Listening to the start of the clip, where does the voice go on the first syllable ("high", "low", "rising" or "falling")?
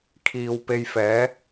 low